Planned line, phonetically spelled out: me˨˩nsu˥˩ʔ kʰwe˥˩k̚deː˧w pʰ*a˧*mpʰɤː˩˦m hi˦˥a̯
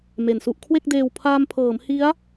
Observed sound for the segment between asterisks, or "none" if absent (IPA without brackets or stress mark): aː˧